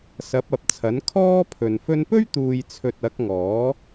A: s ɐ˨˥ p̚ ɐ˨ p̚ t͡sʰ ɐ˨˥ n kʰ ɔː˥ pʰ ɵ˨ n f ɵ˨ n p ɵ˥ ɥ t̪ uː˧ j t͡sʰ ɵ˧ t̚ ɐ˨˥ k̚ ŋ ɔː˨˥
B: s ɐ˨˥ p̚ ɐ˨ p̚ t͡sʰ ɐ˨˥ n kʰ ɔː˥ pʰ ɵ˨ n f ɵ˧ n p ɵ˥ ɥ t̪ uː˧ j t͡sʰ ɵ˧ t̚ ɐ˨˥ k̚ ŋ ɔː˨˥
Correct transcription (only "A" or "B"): B